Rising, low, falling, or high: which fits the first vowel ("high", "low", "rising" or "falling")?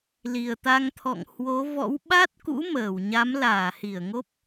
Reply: low